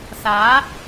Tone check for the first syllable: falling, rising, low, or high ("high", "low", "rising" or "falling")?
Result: rising